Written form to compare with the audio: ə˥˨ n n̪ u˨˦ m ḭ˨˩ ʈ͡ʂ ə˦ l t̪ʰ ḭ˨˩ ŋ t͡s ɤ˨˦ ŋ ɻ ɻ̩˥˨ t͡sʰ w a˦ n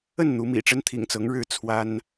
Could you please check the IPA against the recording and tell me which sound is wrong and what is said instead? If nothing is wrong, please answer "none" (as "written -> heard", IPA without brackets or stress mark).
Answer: l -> n